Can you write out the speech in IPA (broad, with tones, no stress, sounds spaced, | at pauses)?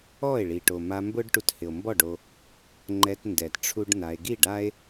ɔ˦˨ e̯ ɭ i˨ ʈ o˨ m a˧ m b ʊ˦ ɖ ʈ u˧ t h ɪ˨ o̯ m b ɔ˦˨ ɖ o˧ | ŋ͡ǃ ɛ˧ t n d ɛ˨ t ʈ͡ʂʰ u˦ ɖ n a˧ e̯ ɡ i˦˨ ɖ a˦ e̯